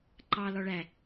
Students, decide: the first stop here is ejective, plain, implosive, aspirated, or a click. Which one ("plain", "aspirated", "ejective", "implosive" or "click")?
click